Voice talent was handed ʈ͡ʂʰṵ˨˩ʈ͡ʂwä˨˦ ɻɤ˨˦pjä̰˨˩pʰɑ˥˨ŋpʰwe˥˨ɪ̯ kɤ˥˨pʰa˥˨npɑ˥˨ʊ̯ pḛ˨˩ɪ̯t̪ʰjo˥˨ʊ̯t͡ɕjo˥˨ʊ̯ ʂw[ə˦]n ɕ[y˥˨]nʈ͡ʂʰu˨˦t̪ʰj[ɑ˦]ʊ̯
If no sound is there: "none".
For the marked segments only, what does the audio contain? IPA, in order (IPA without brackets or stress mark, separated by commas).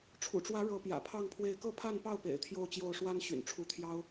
a˦, y̰˨˩, ɑ˦